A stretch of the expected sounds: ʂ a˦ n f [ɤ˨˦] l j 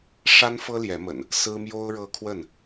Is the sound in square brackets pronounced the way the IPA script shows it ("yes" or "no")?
no